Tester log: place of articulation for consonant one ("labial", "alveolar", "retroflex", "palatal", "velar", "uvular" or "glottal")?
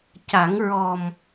palatal